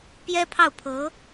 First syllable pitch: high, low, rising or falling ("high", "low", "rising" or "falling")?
high